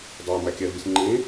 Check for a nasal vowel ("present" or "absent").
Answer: present